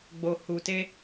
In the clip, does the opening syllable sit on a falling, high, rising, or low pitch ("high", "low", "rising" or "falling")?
low